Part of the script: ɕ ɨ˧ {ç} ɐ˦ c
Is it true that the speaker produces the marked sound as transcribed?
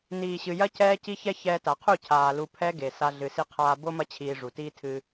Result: no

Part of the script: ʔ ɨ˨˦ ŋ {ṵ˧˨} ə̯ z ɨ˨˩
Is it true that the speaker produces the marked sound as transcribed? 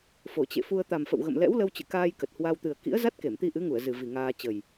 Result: no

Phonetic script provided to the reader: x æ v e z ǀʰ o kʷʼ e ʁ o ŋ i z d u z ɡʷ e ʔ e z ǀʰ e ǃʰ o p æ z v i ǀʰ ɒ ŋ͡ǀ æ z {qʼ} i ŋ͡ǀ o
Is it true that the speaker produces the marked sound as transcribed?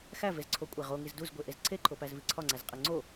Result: yes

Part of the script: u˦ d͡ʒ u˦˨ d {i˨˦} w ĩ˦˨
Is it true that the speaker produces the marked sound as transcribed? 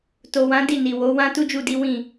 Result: yes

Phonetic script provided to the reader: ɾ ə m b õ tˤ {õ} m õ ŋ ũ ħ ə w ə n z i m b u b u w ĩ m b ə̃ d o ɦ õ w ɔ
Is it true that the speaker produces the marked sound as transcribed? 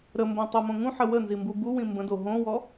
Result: no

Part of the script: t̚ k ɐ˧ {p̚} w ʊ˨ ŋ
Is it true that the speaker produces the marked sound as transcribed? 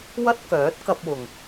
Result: yes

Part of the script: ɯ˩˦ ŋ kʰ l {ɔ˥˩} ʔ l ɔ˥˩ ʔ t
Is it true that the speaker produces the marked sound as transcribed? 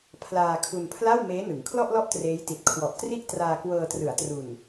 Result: yes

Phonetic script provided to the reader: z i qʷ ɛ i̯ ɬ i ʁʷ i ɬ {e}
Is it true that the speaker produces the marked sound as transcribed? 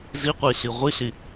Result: no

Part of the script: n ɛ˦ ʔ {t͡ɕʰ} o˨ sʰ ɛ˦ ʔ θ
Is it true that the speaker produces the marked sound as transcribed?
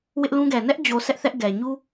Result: no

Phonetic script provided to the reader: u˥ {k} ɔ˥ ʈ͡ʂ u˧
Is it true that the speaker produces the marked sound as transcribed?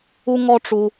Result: no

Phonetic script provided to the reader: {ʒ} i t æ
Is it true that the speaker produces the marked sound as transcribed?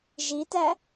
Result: yes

